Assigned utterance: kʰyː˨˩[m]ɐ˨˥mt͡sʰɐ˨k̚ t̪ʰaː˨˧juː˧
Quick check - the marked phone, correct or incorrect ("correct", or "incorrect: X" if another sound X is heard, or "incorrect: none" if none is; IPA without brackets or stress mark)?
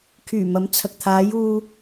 correct